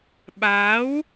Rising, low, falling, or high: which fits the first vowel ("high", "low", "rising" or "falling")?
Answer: rising